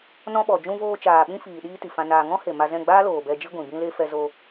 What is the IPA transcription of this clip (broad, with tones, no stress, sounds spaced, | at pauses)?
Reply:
n ɔ̃˧ ɓ ɔ˨ d͡ʒ ũ˧ v oː˧ t͡ʃ aː˨ ɓ ĩ˦ f iː˨ ɗ iː˦ t i˨ f ã˧ n aː˧ ŋ ɔ̃˦ h e˨ m a˧ z ɛ̃˦˨ ɡ͡b aː˦ l oː˨ b ɛ˧ d͡ʒ i˦ ɡʷ ĩ˨ b ĩ˦ l e˦ f ɛ˧ z o˧